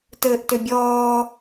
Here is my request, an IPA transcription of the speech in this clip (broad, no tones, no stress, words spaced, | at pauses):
tɘːʔtʏbʲɔː